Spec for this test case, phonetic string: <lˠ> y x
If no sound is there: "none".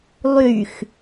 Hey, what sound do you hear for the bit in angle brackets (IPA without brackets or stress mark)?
lˠ